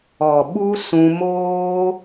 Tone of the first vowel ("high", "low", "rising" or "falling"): low